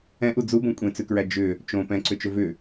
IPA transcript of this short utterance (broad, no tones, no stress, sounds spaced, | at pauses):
ɛ̃ ʔ u d͡z u b õ kʷʼ ẽ t͡s ʉ k ɹ æ d͡ʒ ʏ | t͡ʃ õ p ɛ̃ ǀ ʏ t͡ʃ ʏ v ʏ